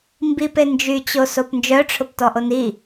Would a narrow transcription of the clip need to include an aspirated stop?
yes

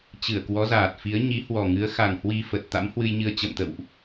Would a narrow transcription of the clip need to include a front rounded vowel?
no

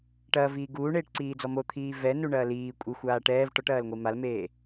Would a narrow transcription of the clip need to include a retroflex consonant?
yes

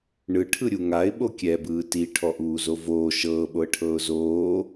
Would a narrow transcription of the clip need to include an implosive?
yes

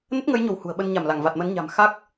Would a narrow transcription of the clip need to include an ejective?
no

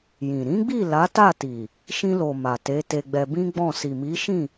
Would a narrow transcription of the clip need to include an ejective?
no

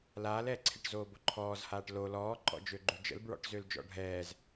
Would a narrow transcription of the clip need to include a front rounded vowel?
yes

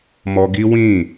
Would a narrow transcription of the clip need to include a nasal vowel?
yes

